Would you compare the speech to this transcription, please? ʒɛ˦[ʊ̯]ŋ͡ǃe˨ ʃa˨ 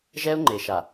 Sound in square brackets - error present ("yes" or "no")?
no